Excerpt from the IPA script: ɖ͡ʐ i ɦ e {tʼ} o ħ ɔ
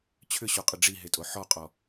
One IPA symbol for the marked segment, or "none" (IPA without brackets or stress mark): tʼ